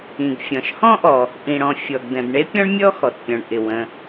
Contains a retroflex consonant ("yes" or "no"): yes